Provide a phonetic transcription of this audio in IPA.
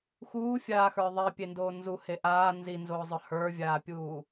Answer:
x uː fʲ aː x ə˞ ðˤ i pʲ e n d oː n z u h e ʔ aː n z i n z oː zˤ ɵ h ə˞ vʲ aː pʲ uː

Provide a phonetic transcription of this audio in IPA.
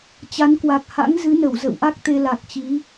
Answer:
t͡ɕ a˨˦ n k w a˨˩ k̚ h a̰˧˥ ŋ z ɨ˨˦ n ə˧˩ w z ə̰˧˨ w ʔ a˦˥ k̚ t̪ e˧ l a˨˩ k̚ t͡ɕ i˨˦

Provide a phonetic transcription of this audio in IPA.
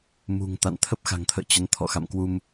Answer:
m ṳ˨˩ ŋ t̪ a̰˧˨ n t̪ʰ ə˦˥ p̚ x a̤˨˩ ŋ t̪ʰ ə̰ː˧˨ t͡ɕ ə˨˦ n t̪ʰ ɔ̰˧˨ x a̰˧˨ m k w u˧ m

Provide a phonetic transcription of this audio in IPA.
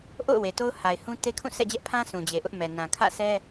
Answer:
ʔ o̰˦˨ ʊ̯ w e˨ t o˦ ʊ̯ h a˨ ɪ̯ h ũ˦ t e˦ kʰ ũ˦˨ sʰ ɛ̰˦˨ d͡ʑ ɛ˦ ʔ pʰ ã˦ s ũ˨ d͡ʑ e˨ ʔ ʊ˦ ʔ m ɛ˨ n ã˨ kʰ ä̰˦˨ sʰ ɛ˦

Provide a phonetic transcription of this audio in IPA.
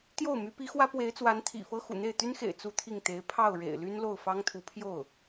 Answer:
t̪ j o˥˩ ʊ̯ m y˧˥ p i˧˥ x w ä˥ p w e˧˥ ɪ̯ t͡s w a˧˥ n t̪ʰ ḭ˨˩ f ɤ˥ x ṵ˨˩ n̪ e˥˩ ɪ̯ t̪ y˥ n x ḛ˨˩ ɪ̯ t͡s u˥˧ t̪ʰ i˥˩ ŋ t̪ e˧˥ ɪ̯ pʰ ɑ˥˩ ʊ̯ ɻ ḛ˨˩ ɪ̯ l y˥ n l o˥˩ ʊ̯ f ɑ˥ ŋ t̪ʰ u˧˥ pʰ j o˥˩ ʊ̯

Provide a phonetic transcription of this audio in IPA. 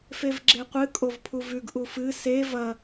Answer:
f e v ɡ͡ǁ e qʷ ɨ kʼ o v pʰ u v ʉ ɡ ʔ u f ɨ s e v ɐ

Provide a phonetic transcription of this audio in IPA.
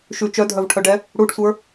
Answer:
ʃ ʉ t͡ʃ œ dʱ œ v ʈʰ œ ɖ ɛ | ɽ u ɖ sʷ ə˞

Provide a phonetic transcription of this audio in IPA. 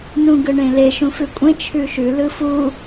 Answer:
n ũ ɡ ɯ ɳ ẽ l e ʃ ũ f ʉ kʷʼ ẽ t͡ʃʰ ʉ ʃ ʉ l ɯ f u

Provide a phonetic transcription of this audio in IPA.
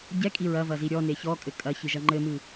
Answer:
ɟ ɛ kʼ i ɹ ɐ v ɐ z i ɾʲ ɔ n e ç ɔ kʼ ɘ kʼ ɐ ç ɨ ʒ ɐ ŋ͡ǃ ɘ m ɨ

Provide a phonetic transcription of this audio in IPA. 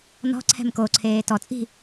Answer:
n ɔ̤ ǀʰ ɛ̤ m k o ǀʰ eː t ɔ t͡sʼ i̤

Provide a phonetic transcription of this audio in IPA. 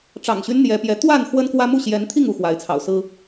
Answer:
ʈ͡ʂ ɑ̰˨˩ ŋ ɕ y˦ n n̪ j ɛ˨˦ p j ɛ˨˦ t̪ w a˥˨ n x w ə˦ n k w ä˦ m u˥˨ ɕ j ɛ˨˦ n t̪ʰ i˥˨ ŋ u˥˨ x w a˨˦ ɪ̯ t͡sʰ ɑ̰˨˩ ʊ̯ s ɹ̩˦

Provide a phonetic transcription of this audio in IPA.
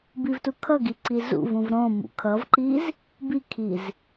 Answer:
b i v t u kʰ ʌ ɡ i ǀ i z ṵ v ũ v ɾ õ m ṵ kʰ ʌ v ǃ i z | b i kʰ i z

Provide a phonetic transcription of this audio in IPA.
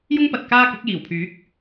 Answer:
j ʊ˥ ŋ p ɐ˨ t̚ k aː˥ k ʊ˨˥ k̚ j iː˨˩ w pʰ yː˨˥ k̚

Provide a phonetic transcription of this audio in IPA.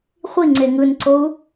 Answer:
χʷ i ŋ͡ǀ e ŋ ɯ n ǀ o u̯

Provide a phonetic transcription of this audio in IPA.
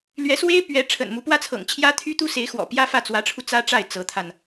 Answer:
l ɥ ɛ˧˥ s w e˥ ɪ̯ p ɥ ɛ˧˥ ʈ͡ʂʰ ə̰˨˩ n m u˧˥ p w ä˥ t͡sʰ ɤ̰˨˩ ŋ t͡ɕʰ j ä˥ t̪ʰ y˥ t̪ u˥ s e˧˥ ɪ̯ x w ɔ̰˨˩ p j ä˥ f ä˥˩ t͡s w ä˧˥ ʈ͡ʂʰ u˧ t͡s ä˥ ʈ͡ʂ a˥˩ ɪ̯ t͡s ɤ˧˥ t̪ʰ a˧ n

